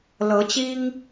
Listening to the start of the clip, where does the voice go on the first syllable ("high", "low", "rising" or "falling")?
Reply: rising